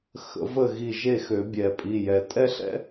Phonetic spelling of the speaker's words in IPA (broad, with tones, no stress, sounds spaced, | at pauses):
x ə̰˧ v ə˥˨ ɣ i˧˩ ʒ e˥˨ x ø˨˩˦ bʲ ɛ˨˩˦ pʼ i˩˧˩ j ɛ˨˩˦ tʼ ɛ˥ ɬ ɛ̰˥